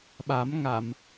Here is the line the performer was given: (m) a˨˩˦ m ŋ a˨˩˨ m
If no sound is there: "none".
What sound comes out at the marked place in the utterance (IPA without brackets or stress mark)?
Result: ɓ